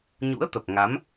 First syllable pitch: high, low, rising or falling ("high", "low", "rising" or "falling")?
rising